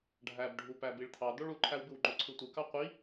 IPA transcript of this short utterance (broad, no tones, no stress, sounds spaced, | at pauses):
ɖʱ æ b ɖʱ u p æ b i ɭ t̪ʰ ɑ d̪ o ɭ u ǃʰ æ w b ɯ w ŋ͡ǃ o ǀʰ ɯ tʷ ɯ k ɑ qʷ i